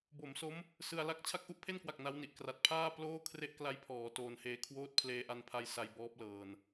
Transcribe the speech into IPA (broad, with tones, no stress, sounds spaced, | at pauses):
b o˩˦ m s o˦˥ m | s ɯ˧ a̯ l a˥˩ k̚ t͡ɕʰ a˥˩ k̚ ʔ u˥˩ ʔ pʰ e˥˩ n k w a˨˩ k̚ n a˦˥ w n i˨˩ ʔ k r a˨˩ t̚ pʰ aː˥˩ p l oː˥˩ kʰ r e˥˩ ʔ k l a˦˥ j pʰ ɔː˩˦ t oː˧ n h eː˧ kʰ w oː˥˩ t̚ pʰ l eː˧ ʔ a˧ n pʰ a˧ j s a˧ j b ɔː˦˥ p̚ l ɤː˧ n